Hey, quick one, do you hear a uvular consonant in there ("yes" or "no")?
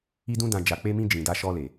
no